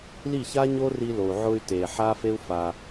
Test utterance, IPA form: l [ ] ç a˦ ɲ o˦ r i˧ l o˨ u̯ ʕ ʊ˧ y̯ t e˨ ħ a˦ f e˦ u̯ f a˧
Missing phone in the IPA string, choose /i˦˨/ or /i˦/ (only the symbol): i˦˨